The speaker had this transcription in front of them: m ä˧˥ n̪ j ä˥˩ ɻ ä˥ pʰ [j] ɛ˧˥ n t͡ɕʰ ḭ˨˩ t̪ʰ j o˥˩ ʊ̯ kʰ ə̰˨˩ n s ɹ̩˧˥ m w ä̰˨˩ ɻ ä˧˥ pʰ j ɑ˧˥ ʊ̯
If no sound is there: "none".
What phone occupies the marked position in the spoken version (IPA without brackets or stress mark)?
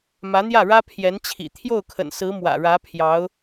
j